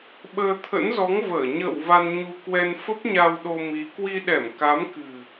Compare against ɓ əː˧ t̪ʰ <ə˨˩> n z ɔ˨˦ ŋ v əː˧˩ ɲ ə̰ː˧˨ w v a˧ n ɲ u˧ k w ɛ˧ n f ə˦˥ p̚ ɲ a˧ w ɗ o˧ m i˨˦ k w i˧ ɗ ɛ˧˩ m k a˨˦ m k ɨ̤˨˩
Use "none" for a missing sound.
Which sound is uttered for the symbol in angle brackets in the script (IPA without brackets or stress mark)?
ə̰˧˥